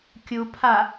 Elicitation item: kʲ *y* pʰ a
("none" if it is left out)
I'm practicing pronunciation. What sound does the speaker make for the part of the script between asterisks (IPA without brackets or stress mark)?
u